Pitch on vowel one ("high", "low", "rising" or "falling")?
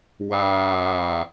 low